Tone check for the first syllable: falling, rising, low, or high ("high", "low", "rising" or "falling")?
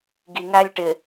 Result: low